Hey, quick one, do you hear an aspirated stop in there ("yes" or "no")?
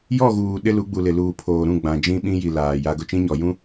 yes